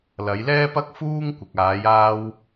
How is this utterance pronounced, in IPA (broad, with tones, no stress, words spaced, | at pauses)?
lɐ˨˧jlɛː˥pɐ˥k̚ fuː˥ŋkʷɪ˨k̚ aː˨˧jaː˧w